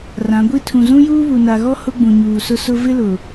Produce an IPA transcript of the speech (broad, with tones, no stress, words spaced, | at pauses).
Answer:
rã˨˦ɡʷi˦ tʰũ˨zũ˦juː˦βu˨ na˨ɣɔ˦ hʊ˦ ɡ͡bũ˨ɲuː˨sʊ˦ sʊ˦ vɪ˦lʊ˨